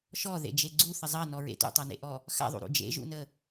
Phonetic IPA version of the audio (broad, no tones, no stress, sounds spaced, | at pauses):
ʃ ɔ ð ḛ d͡ʒ e ɡ͡ǀ u θ ə zˤ ɐ n ɔ ɹ ḛ t ṵ tˤ a n ḛ ʔ ɔ | x a̰ ðˤ ṵ ɾ ṵ d͡ʒ ḛ ʒ ṵ n ə